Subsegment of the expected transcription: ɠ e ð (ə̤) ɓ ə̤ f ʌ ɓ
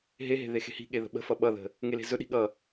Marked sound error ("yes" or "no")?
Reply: no